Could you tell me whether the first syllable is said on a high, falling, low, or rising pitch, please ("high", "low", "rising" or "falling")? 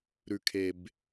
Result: low